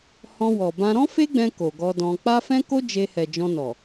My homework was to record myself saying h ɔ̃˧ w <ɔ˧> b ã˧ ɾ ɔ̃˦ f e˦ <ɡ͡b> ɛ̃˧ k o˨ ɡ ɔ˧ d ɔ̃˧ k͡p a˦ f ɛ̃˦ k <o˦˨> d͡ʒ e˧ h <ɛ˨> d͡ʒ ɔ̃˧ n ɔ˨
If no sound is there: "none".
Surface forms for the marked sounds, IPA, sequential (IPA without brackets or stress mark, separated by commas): ɔ˨, ɡ͡b, o˦, ɛ˨